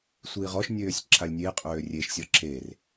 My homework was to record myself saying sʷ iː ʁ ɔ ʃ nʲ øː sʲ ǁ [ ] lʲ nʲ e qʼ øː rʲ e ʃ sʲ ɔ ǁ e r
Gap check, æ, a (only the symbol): a